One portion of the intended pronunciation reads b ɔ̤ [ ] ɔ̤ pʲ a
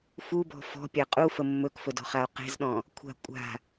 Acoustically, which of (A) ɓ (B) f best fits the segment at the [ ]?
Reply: B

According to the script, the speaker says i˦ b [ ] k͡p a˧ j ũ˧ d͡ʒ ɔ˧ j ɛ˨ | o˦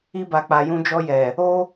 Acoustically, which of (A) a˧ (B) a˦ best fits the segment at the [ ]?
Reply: A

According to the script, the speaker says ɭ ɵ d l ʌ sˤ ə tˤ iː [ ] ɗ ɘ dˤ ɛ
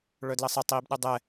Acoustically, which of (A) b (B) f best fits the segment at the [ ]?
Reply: A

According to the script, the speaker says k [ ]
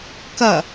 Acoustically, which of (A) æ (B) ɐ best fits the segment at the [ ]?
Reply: B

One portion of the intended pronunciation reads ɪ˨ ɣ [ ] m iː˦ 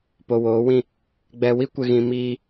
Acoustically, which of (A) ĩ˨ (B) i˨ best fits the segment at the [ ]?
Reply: A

